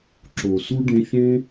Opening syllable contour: low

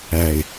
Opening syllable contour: low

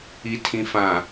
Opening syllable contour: low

